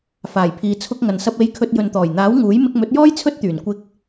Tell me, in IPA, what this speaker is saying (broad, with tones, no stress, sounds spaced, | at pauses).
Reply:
f aː˨˩ j pʰ iː˨ t͡sʰ ʊ˧ k̚ ŋ ɐ˨ n s ɐ˧ p̚ e˧ j kʰ ɵ˧ t̚ j ɵ˨ n t̪ ɔː˨˩ j n̪ aː˨˥ w ŋ uː˨˥ j m ɪ˧ k̚ m ɵ˨˥ t̚ j ɔː˥ j t͡sʰ ɵ˥ t̚ t̪ yː˨˩ n kʷ ɪ˧ k̚